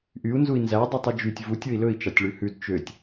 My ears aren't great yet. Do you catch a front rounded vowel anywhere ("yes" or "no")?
yes